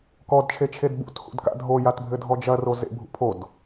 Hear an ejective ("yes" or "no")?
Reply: no